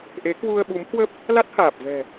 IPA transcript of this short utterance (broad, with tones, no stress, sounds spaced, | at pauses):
ʔ e˨˦ k w u˧ ə̯ ɓ u˨˦ m h w ə˦˥ p̚ | l a˦˥ t̚ h aː˨˩ p̚ v ɛ̤˨˩